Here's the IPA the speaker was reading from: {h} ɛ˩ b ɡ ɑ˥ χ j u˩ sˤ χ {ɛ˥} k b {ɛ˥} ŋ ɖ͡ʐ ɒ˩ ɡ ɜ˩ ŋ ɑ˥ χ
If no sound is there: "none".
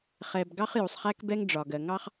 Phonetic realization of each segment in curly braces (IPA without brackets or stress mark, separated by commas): χ, æ˥, ɛ˥